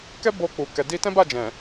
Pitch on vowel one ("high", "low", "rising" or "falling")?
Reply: high